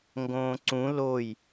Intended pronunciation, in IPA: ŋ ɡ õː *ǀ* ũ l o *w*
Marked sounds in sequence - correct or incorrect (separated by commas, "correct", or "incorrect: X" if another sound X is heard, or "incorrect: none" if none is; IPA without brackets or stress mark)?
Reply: correct, incorrect: j